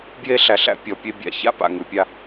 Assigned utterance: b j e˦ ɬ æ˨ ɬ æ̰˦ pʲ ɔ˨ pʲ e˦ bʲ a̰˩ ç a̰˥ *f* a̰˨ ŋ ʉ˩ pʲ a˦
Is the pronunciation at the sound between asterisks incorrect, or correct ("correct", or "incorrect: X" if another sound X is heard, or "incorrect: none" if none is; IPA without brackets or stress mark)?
incorrect: p